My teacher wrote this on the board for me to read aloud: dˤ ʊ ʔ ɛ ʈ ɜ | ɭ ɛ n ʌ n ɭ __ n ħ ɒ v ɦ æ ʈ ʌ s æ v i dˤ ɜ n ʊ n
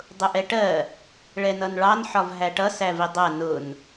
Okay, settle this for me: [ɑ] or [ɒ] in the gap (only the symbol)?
ɑ